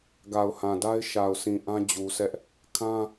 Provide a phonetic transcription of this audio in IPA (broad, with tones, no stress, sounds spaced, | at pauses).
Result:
ɡ a˨ ʊ̯ h ã˨ d a˦ ɪ̯ ʃ a˨ ʊ̯ sʰ ĩ˨ ʔ ã˦ d͡ʑ u˨ sʰ ɛ˦ ʔ | kʰ ã˦